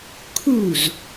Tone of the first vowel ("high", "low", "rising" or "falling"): falling